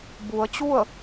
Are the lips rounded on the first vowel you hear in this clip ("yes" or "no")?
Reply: yes